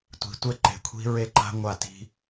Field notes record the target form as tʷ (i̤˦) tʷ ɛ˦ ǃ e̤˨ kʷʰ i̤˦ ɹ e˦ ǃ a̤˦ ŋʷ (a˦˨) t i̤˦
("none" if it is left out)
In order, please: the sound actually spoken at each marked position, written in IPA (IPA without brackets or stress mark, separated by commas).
i̤˨, a˦˨